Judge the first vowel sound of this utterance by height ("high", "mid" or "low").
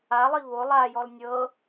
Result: low